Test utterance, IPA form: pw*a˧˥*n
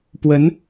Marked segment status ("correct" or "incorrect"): incorrect